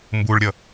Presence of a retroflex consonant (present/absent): present